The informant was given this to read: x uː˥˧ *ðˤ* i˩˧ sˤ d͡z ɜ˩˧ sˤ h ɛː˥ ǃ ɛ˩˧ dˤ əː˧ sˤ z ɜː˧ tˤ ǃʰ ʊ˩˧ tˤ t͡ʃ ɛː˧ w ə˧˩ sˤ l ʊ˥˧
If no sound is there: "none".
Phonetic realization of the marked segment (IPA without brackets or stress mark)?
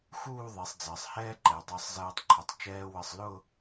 ðˤ